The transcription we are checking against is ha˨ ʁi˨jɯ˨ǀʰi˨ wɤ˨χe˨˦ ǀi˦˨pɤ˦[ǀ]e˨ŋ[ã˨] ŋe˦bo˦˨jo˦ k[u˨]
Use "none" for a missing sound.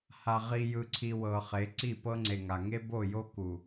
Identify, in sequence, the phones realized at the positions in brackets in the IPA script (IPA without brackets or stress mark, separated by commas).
ŋ͡ǀ, a˨, u˨